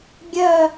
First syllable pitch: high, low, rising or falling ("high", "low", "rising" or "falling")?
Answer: falling